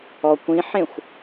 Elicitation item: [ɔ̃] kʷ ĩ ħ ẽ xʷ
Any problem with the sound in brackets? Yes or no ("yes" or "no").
yes